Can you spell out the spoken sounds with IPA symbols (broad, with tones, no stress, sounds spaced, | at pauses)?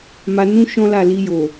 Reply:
m a˧ n ũ˦ ʃ ɔ̃˦ l a˦˨ l i˧ j o˨